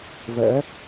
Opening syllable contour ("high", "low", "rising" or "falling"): rising